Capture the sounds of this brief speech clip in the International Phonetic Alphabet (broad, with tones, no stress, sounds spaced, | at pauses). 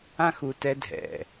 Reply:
ã˦ x u˧ t ɛ˧ dʱ ɛ̰˨